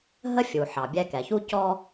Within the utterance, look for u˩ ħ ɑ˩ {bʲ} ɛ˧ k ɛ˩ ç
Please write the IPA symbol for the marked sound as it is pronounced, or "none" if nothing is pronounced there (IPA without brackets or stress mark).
bʲ